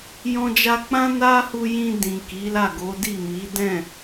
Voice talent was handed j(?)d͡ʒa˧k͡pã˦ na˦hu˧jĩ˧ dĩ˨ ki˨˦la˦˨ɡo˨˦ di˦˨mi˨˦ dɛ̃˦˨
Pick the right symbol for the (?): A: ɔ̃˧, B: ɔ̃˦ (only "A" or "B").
A